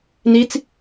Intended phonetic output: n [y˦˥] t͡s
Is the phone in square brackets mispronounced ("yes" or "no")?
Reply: yes